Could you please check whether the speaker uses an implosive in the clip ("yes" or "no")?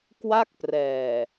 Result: no